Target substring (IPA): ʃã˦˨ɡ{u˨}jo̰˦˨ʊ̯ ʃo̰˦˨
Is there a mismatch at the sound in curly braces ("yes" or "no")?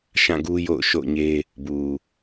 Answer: yes